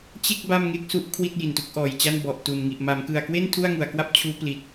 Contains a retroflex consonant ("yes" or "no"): no